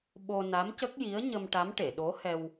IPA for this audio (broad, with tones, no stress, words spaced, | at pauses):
ɓo˧ na˧˥mcə˦˥k̚ji˧˥ə̯ ɲə˧mʈa˧˥m ʈe˨˩˨ɗo˧˥hɛ˧w